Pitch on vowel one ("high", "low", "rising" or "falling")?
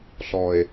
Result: low